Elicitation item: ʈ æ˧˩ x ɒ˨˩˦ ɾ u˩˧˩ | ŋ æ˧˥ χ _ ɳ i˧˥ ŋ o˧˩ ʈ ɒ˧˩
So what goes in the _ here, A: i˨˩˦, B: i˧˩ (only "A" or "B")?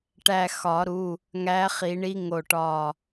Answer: A